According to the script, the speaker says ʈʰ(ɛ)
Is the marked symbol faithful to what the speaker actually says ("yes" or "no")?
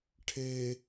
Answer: no